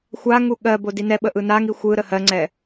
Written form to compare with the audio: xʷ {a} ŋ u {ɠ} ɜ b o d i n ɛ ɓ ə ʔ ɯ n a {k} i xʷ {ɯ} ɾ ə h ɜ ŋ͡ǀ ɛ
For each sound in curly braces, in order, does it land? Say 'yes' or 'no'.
yes, yes, no, yes

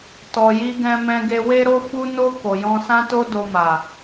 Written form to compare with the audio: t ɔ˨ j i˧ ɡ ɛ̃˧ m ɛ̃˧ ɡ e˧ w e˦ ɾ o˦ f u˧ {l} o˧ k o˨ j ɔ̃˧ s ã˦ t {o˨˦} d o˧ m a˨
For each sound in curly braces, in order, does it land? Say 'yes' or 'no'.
no, no

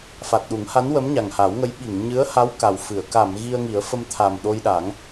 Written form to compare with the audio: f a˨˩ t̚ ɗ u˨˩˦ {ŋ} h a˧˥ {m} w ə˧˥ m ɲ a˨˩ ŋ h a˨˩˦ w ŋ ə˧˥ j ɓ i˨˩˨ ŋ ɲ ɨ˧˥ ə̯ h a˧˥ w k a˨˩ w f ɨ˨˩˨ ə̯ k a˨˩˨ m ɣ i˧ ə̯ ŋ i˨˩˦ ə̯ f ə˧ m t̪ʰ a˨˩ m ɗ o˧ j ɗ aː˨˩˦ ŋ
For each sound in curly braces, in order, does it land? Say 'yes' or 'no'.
yes, no

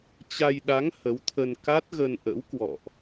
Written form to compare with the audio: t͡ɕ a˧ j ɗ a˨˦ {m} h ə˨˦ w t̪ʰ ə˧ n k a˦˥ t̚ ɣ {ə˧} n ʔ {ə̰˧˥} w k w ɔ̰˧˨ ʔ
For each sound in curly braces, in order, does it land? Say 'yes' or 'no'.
no, yes, yes

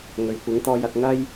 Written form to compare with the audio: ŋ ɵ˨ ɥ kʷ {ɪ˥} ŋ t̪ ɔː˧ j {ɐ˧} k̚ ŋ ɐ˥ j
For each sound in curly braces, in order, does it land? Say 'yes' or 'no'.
no, yes

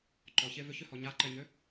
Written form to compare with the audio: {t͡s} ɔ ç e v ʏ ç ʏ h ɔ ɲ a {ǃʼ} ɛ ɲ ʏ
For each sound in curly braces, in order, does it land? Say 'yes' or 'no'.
no, no

